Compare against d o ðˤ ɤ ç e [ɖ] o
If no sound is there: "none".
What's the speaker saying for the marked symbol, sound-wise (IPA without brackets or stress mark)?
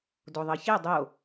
dˤ